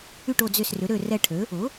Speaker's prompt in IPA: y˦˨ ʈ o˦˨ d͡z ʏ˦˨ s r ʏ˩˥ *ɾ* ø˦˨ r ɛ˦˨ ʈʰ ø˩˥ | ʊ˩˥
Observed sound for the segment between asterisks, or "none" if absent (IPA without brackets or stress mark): ɾ